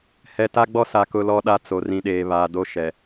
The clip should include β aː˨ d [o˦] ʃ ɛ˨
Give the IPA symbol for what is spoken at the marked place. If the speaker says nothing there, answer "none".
o˦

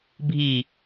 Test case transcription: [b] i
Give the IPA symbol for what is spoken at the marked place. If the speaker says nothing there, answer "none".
bʱ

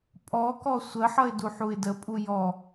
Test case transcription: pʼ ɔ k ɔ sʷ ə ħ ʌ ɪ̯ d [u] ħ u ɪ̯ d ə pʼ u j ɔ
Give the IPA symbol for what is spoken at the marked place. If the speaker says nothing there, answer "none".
u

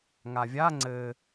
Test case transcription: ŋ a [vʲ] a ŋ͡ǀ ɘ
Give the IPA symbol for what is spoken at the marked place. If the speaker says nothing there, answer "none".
vʲ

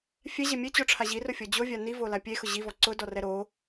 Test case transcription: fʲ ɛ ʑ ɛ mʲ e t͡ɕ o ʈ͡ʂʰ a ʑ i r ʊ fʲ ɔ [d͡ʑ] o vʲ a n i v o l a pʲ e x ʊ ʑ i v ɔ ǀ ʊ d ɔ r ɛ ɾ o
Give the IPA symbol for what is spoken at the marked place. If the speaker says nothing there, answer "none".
d͡ʑ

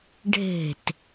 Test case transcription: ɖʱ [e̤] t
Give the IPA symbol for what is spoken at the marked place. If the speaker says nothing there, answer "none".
e̤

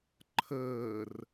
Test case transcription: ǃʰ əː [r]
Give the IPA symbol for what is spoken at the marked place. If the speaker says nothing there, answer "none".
r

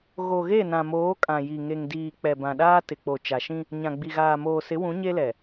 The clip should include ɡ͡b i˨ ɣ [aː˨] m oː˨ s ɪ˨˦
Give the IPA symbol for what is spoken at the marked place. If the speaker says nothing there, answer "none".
aː˨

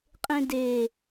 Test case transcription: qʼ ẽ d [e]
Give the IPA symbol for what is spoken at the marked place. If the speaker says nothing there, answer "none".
e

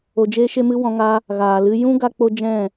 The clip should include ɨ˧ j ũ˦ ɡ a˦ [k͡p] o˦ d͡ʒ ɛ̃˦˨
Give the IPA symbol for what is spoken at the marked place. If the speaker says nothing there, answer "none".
k͡p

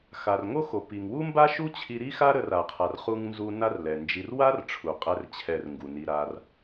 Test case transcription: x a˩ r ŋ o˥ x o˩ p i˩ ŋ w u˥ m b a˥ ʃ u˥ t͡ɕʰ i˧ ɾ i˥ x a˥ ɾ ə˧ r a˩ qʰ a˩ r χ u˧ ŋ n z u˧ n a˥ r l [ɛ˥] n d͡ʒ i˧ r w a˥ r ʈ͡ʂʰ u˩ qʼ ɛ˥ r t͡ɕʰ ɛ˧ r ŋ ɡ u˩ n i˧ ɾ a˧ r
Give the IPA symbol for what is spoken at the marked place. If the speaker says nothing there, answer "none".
ɛ˩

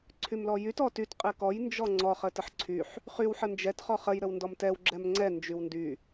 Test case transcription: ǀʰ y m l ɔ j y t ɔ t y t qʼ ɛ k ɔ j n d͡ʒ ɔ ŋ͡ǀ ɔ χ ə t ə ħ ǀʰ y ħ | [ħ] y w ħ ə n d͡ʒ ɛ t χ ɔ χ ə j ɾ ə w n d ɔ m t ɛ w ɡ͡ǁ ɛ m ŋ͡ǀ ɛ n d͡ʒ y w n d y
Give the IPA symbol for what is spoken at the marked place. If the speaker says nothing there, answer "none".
χ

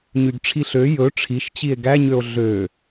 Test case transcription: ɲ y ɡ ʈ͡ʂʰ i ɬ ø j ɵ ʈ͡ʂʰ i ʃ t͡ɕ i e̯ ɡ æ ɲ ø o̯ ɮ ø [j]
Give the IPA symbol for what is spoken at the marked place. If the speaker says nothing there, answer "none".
none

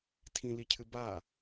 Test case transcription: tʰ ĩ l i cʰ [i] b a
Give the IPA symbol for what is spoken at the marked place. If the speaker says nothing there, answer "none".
ɨ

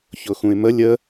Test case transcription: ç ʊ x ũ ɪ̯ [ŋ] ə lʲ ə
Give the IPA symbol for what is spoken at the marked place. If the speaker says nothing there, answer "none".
m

